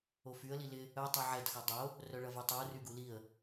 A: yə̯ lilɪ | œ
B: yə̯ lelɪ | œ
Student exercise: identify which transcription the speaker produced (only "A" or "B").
A